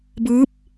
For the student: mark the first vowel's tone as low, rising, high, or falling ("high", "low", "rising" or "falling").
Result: rising